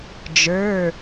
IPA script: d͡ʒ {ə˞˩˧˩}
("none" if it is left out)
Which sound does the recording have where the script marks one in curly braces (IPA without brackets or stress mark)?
ə˞˩˧˩